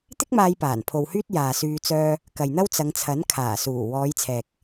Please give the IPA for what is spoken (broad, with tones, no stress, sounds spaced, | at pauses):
t̪ ɪ˥ k̚ m aː˧ j p aː˨˩ n pʰ o˨ w h yː˥ t̚ j aː˨ s yː˧ t͡s œː˥ | k ɐ˨ j n̪ ɐ˥ w t͡s ɐ˨˧ ŋ t͡sʰ ɐ˨˥ n kʰ aː˨˩ s uː˨˩ w ɔː˨˧ j t͡sʰ ɛː˨ k̚